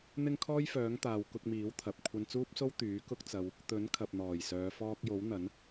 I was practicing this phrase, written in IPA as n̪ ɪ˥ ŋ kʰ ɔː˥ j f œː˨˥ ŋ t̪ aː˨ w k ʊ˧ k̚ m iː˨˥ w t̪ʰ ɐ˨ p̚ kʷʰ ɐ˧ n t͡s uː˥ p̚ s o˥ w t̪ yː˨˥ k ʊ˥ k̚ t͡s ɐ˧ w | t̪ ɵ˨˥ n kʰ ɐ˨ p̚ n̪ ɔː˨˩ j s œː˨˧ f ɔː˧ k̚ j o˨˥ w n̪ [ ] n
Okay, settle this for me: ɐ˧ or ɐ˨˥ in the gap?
ɐ˨˥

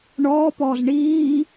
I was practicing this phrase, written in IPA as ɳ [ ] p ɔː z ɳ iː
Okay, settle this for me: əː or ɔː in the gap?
ɔː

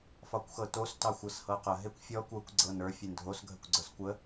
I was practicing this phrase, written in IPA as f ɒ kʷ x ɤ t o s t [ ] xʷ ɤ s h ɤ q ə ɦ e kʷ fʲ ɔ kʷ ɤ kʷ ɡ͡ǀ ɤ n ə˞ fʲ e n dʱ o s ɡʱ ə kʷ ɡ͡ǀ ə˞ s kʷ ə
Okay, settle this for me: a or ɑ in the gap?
ɑ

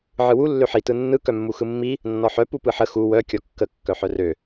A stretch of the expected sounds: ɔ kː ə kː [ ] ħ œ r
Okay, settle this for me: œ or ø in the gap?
œ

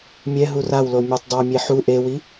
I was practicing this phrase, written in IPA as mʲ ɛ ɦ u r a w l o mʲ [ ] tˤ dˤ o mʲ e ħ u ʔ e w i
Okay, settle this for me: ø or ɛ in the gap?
ɛ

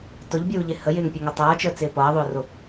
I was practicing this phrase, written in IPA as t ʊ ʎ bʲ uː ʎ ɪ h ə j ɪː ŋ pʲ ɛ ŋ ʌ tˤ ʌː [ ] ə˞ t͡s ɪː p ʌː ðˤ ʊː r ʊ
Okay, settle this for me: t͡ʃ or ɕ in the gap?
t͡ʃ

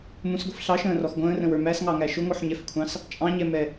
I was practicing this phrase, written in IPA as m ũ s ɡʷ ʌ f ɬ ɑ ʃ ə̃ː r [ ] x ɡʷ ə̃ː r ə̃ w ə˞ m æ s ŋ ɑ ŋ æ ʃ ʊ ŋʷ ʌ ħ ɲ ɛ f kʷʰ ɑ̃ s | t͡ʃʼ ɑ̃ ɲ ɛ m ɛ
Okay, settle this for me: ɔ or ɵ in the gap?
ɔ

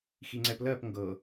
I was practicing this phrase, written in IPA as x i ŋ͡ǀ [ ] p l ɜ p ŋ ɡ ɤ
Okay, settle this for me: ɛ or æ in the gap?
ɛ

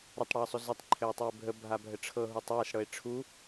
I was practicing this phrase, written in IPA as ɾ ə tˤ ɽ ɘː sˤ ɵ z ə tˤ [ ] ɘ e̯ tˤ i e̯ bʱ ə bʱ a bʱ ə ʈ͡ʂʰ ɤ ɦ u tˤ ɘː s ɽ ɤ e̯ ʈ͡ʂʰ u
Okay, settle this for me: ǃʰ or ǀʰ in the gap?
ǃʰ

